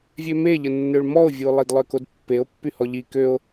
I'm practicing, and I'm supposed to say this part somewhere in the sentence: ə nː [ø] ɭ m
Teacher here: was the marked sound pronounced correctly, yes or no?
yes